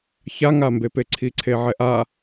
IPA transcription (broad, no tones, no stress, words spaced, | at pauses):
çaŋambepe ǀʰiǀʰeʕɛʔa